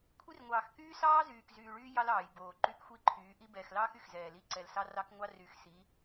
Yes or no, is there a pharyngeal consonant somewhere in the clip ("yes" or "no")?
no